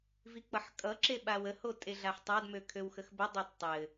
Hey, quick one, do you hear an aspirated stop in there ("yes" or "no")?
yes